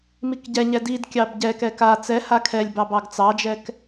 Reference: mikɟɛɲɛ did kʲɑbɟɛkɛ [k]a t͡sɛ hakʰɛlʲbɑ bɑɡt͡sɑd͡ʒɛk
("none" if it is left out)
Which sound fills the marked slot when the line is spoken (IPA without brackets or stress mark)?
k